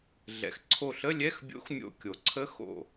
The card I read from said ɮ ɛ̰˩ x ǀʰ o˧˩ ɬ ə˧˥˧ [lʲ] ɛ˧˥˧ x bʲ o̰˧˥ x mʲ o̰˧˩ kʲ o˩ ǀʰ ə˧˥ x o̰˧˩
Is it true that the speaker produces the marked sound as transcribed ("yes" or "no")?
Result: yes